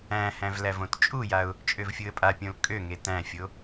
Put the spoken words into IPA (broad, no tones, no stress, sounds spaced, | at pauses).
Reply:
æ̃ h æ̃ v l æ v õ t t͡ʃʼ u j a ʊ̯ | t͡ʃʼ ø v fʲ u ə̯ pʼ a pʲ õ l kʼ ø ŋ e t æ̃ fʲ o